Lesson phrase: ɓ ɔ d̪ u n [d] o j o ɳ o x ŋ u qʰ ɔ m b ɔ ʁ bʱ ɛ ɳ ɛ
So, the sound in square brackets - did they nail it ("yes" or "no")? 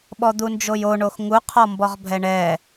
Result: no